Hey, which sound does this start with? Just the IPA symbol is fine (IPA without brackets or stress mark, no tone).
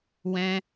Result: w